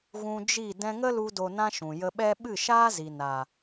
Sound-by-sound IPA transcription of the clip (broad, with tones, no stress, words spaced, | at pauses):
ɣũ˧d͡ʒi˦˨ dɛ̃˧ŋə˦lu˧ do˧nã˦ʃũ˨ jə˧ɓɛ˦ ɓɨ˦˨ʃaː˦zi˨ na˨